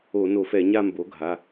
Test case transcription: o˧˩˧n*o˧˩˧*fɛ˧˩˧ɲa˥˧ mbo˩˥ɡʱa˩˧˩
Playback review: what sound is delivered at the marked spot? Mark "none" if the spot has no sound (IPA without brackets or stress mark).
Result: o˧˩˧